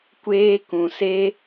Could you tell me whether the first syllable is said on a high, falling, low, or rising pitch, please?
high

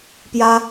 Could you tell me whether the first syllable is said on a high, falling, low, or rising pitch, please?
high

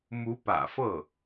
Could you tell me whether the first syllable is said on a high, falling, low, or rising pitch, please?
rising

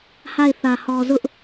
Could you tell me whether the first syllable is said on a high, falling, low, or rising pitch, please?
falling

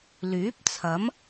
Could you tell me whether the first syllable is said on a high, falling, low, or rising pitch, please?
rising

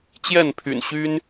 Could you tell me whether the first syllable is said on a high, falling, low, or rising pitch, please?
falling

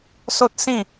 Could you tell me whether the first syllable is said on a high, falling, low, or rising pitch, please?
high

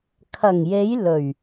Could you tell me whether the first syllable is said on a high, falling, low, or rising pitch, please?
low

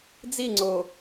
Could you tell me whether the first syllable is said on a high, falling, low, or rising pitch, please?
falling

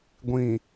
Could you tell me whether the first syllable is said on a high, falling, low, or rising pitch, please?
low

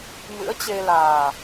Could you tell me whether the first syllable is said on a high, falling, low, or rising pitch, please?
rising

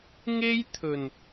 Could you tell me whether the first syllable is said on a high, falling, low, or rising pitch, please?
high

